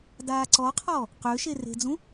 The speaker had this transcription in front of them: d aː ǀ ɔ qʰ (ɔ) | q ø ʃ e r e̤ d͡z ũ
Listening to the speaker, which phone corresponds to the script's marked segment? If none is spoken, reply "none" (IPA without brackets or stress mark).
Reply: ɔ